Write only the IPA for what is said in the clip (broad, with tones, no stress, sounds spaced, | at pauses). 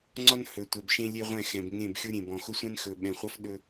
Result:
ŋ͡ǀ ɒ˦ n h ɵ˨ tʷ ɛ˨ b ʃ ẽ˦ lʲ e˦ ʁʷ ɛ̃˦˨ x ɛ̃˨ b ŋ ẽ˦˨ b xʲ ʊ˦ ɾʲ ẽ˨ b ɔ̃˨ x ʊ˦ sʷ ɛ̃˦ n x ɵ˨ ɓ ɛ̃˨ χʷ ʌ˦ f ɗ ɵ˦